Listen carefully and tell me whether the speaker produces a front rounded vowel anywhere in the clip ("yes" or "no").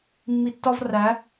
no